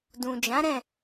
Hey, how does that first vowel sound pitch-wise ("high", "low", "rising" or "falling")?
low